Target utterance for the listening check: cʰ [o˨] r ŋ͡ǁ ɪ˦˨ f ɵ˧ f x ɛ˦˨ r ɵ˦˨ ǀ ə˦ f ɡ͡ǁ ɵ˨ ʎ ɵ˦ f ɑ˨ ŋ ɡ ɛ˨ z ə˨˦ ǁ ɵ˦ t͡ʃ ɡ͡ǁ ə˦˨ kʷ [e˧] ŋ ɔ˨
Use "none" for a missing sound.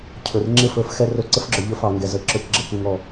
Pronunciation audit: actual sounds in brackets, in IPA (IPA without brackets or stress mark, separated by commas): ɵ˨, e˧